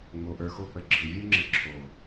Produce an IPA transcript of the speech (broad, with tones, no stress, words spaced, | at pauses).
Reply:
ŋ͡mo˧ʔə˞˧xo˦k͡pə˧ ɡ͡ǁɯ˨ vʲə˞˦ŋ͡ǁə˧ ǁʰo˨